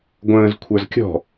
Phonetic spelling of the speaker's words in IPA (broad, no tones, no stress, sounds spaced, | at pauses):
ɡʷ ə̃ː z kʷʰ ə˞ z kʲ ɔ̤